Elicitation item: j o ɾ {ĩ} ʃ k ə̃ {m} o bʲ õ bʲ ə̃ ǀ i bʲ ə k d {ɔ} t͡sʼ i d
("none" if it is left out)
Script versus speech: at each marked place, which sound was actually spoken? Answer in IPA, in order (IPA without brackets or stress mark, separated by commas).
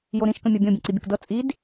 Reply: ĩ, mʲ, ɤ